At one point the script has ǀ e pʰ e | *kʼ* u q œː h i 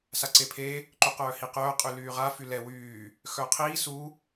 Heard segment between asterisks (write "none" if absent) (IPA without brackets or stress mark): ǃ